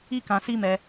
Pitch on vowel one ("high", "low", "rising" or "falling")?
high